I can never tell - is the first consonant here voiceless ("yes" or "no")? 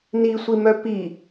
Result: no